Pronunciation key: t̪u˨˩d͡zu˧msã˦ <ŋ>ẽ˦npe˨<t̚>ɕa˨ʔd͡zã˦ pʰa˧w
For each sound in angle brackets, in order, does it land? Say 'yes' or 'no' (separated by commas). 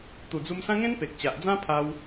yes, no